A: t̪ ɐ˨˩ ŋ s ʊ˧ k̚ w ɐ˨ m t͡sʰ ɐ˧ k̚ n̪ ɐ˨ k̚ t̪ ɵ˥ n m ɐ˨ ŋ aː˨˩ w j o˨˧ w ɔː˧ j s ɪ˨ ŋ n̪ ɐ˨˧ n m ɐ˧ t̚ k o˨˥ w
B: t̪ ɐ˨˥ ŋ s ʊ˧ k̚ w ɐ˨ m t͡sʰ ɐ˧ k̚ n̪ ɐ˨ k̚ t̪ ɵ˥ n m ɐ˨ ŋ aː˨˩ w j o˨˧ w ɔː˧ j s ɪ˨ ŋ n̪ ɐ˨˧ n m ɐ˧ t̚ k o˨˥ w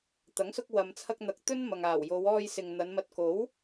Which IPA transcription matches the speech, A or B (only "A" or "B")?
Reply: B